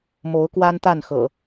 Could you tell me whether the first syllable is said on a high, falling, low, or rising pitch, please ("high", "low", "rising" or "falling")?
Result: rising